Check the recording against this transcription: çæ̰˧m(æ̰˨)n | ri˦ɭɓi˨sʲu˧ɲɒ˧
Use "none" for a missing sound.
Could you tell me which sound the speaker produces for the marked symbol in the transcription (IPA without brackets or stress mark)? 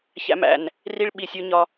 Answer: æ̰˨